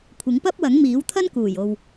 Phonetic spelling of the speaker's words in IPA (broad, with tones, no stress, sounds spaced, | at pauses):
kʷʰ ɪ˨˥ ŋ p ɐ˥ p̚ w ɐ˨˥ ŋ m iː˨˥ w t̪ʰ ɐ˥ n k uː˨˩ j o˨ w